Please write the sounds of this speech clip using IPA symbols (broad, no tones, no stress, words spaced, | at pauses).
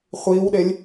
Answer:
χʷiːwɗelʲ